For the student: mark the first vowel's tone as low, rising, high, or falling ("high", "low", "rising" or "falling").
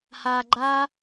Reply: low